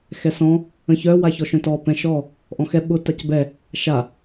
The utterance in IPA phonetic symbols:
x ɛ s ɔ̃ | ə̃ ç œ w a ç ɔ ʃ œ̃ t ɔ p ɛ̃ ʃ ɔ | ʔ ɔ̃ x ɛ ɓ ʊ t a c b ɛ | ʃ a

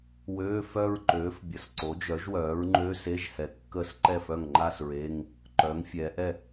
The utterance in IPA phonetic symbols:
w øː˧˥˧ f œ˥˧ ɹ ǃ øː˩˥ f bʲ ə˩˥ s ǀ o˩˥ d͡ʒ œ˩˥ ʒ w œː˩˥ ɹ ŋ͡ǃ ø˧˥˧ s e˧˥˧ ʒ h ɛ˩˥ kː ə˥˧ s ǃ ɛ˥˩ f œ˥˩ ŋ ŋ͡ǃ a˥˧ s ɹ e˧˥˧ ŋ | ǃ œ˩˥ ŋ fʲ ɛː˩˧ ʔ ɛ˥˩

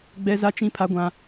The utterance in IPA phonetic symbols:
ɡ͡b ɛ˦ z a˦ t͡ʃ ĩ˦ pʰ a˦ ɡʷ ã˦

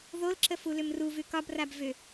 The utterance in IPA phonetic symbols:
ð o l ǁ ə f u l ʏ m r u v ʉ k ɒ b r a b v ʏ

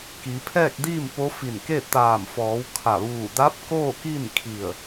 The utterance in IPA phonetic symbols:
k i˩˧ pʰ ɛː˥˨ k̚ d iː˥˨ m p o˧˥ f i˧˩ n k e˥˨ t̪ aː˧˩ m f ɔː˩˧ w kʰ a˧˩ ʋ uː˧˩ d a˧˥ p̚ k oː˥˨ k i˥˨ n kʰ i˧˩ ə̯

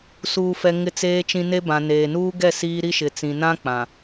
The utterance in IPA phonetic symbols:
s uː˨ f ɛ˨ ŋ ɪ˨ t͡s eː˨ t͡ʃ ĩ˨ n e˦ b ã˨ n eː˨ n uː˦ ɡ ɛ˦˨ s iː˦ ɾ i˦ ʃ ɪ˨ t͡s ĩ˨ n ã˦ k͡p ã˨

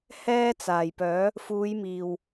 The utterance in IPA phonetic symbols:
h ɛː˥ t͡s aː˨˩ j p œː˨˥ | f uː˨˧ j m iː˨˩ w

